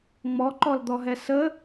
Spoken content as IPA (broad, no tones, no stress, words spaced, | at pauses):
ŋ͡mɔǃɔld̪ɔɦɛ sə